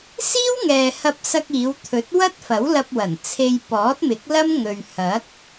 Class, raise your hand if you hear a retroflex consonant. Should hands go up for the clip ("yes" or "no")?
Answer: no